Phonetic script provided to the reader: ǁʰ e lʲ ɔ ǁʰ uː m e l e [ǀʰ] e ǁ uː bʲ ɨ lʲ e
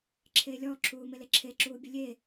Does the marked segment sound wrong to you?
yes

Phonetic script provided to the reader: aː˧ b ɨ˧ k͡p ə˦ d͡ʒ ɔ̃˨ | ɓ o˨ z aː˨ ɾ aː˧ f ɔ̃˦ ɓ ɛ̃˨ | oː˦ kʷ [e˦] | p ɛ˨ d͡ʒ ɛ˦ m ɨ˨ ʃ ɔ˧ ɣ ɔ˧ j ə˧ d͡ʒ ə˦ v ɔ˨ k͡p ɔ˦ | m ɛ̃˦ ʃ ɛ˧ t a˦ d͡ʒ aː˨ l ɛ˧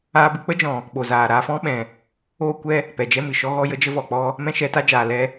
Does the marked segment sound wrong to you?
yes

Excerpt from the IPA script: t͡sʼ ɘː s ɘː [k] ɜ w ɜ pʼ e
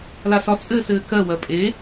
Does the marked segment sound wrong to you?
no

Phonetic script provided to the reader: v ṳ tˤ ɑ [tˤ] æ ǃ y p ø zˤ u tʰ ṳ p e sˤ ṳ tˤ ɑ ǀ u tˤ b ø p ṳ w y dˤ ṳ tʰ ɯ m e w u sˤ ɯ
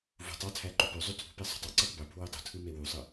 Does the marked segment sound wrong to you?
yes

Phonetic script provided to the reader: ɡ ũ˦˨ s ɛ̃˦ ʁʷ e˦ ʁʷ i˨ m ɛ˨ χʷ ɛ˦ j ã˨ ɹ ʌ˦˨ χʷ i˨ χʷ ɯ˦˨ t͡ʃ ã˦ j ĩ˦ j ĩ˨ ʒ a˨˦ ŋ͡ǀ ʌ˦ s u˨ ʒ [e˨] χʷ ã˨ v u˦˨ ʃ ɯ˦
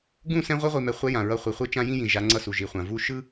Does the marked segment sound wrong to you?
yes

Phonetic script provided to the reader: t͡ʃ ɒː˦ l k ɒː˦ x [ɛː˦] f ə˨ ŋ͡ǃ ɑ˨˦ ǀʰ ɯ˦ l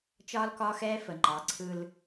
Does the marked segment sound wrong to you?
no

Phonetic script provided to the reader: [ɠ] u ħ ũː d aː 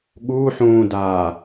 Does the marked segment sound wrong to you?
no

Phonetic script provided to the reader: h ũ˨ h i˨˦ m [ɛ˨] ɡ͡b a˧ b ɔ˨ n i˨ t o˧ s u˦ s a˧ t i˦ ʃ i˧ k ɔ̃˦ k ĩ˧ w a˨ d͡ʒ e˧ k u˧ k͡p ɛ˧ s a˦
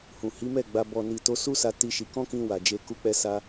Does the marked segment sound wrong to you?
yes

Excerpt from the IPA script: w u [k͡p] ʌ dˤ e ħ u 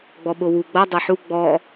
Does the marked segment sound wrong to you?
yes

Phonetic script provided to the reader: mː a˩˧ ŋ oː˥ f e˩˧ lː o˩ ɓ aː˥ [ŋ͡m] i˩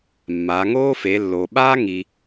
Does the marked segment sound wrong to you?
yes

